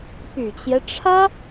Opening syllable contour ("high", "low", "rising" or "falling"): low